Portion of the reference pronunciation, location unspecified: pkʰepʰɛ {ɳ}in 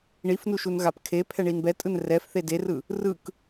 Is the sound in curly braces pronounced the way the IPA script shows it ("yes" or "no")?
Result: yes